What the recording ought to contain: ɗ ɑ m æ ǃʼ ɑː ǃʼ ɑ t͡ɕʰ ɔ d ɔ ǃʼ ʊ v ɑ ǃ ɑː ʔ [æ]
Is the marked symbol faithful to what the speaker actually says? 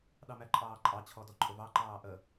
no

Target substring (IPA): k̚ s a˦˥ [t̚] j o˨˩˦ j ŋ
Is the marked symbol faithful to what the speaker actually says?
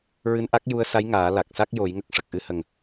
no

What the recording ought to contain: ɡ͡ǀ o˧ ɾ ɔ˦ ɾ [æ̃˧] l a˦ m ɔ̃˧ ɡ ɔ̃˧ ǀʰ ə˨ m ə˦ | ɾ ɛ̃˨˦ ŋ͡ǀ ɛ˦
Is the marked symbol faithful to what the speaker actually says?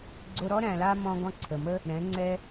yes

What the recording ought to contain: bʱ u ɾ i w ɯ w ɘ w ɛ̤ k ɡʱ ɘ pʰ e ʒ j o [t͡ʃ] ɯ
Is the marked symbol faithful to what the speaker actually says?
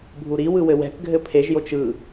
yes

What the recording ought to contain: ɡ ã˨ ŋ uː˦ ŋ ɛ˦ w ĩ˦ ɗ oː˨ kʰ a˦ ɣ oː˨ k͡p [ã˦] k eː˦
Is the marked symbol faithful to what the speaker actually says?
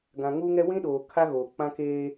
yes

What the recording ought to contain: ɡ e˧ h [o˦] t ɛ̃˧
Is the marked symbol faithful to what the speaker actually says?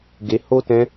yes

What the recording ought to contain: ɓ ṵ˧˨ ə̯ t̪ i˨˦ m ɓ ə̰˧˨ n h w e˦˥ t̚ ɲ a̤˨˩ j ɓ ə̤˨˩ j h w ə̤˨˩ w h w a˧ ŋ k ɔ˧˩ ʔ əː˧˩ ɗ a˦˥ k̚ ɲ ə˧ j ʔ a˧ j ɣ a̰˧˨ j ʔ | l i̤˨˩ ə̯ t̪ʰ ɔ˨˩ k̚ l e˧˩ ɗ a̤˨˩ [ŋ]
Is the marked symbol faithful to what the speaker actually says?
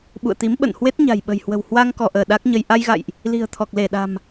no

